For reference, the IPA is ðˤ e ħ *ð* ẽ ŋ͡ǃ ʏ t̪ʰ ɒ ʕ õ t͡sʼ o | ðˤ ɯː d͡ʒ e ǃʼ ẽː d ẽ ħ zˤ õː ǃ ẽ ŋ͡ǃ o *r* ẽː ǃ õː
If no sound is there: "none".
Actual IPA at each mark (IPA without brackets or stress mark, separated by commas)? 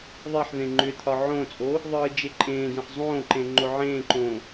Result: ð, ʕ